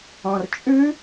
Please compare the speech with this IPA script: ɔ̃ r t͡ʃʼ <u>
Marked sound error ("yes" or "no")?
yes